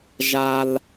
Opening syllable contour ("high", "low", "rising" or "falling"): high